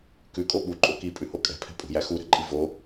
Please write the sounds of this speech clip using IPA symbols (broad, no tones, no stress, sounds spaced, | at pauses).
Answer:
k ʉ kʼ o ɓ u ǃʼ o k i pʼ ʉ h o kʼ ɛ̤ pʰ ɛ̤ pʼ ṳ j æ x u ɾ ɛ̤ ǃʼ i v o